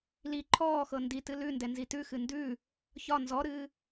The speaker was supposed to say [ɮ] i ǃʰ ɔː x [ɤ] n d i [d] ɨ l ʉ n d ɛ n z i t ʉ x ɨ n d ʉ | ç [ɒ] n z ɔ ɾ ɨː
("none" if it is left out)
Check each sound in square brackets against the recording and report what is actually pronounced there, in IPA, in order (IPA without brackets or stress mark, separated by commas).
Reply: l, ɤ, t, ɒ